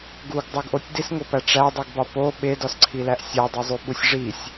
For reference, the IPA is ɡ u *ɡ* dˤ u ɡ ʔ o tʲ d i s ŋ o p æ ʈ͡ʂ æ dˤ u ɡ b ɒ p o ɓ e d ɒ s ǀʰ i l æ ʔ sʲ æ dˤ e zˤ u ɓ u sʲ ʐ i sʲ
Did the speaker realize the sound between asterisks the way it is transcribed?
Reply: yes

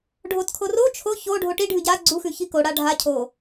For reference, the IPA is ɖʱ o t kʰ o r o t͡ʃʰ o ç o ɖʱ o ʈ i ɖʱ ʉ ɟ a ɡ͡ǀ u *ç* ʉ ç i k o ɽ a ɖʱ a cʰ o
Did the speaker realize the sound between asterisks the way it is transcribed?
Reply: no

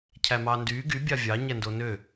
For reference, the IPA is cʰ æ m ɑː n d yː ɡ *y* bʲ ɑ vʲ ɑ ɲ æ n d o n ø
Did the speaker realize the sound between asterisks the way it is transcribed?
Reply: yes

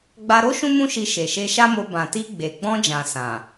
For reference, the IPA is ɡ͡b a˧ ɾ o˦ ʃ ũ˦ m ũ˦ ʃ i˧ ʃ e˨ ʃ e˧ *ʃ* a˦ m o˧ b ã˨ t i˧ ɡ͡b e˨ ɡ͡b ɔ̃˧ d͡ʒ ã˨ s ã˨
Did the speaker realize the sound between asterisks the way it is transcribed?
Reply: yes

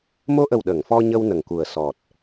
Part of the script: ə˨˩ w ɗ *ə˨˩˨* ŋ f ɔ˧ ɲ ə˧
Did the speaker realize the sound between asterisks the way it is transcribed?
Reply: yes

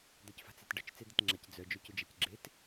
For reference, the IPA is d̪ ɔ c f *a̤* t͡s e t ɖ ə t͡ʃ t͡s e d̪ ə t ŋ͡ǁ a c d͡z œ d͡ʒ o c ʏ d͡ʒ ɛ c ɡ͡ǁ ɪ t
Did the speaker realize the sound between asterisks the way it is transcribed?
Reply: yes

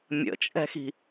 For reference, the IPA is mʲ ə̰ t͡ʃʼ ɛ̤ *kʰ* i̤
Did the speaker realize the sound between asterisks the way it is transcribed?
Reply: no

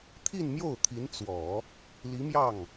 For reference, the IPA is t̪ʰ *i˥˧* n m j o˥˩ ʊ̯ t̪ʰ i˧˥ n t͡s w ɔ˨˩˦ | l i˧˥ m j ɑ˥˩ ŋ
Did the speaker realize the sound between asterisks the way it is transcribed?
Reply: yes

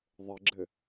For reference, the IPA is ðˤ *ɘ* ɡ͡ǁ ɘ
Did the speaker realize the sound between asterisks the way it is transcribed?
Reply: yes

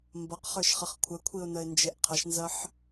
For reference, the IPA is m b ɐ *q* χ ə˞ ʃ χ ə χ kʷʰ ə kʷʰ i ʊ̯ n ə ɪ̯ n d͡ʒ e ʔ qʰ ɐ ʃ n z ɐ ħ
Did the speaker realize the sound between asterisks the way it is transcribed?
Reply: yes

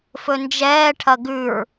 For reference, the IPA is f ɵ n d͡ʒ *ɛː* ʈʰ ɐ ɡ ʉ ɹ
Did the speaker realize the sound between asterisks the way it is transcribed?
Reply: yes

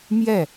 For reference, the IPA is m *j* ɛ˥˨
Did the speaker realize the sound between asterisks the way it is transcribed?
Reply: yes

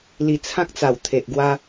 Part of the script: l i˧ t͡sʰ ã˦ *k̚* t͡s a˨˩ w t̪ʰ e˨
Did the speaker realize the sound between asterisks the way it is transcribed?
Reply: yes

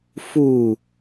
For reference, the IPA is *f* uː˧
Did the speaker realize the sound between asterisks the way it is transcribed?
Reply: yes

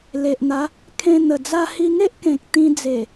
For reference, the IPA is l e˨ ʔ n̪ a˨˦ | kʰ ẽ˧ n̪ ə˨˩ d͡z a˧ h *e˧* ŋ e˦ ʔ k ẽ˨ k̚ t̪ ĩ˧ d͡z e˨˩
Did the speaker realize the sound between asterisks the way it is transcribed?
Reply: no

